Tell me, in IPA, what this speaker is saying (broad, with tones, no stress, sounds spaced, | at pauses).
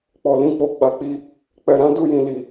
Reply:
k͡p ɔ˨ l ĩ˧ k͡p o˨ ɡ͡b a˨˦ k͡p i˧ | k͡p ɛ˨ ɾ ã˨˦ d u˦˨ j ĩ˨ l i˨